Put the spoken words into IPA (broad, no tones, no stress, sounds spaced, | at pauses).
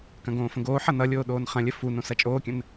k ɐ̃ ɡ õː f ə̃ ɡ oː ħ ʌ n ʌ lʲ oː ɗ oː n χ ɐ̃ lʲ ə f u n õ s ɐ t͡ʃʼ oː kʲ ə̃ n